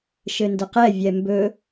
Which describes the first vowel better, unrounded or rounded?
unrounded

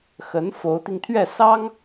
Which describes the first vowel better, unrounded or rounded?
unrounded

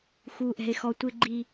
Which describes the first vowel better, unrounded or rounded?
rounded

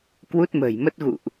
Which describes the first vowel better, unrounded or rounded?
rounded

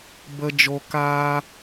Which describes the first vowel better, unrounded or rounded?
unrounded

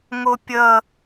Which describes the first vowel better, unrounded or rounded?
rounded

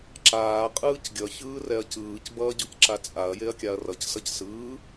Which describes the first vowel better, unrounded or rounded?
unrounded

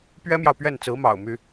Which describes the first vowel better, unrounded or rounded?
unrounded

